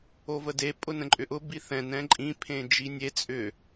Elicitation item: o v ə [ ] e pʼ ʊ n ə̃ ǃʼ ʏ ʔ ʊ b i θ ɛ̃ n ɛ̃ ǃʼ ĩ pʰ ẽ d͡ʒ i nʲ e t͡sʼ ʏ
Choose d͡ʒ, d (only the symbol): d